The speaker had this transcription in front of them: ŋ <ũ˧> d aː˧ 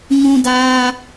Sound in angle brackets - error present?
no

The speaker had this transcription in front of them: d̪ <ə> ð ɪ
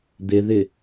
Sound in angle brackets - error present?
yes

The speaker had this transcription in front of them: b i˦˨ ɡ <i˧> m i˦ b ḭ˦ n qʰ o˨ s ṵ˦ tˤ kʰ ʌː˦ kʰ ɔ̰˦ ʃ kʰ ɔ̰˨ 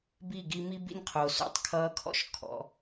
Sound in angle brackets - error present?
no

